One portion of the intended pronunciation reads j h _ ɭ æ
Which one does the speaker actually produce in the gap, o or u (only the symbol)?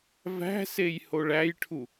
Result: o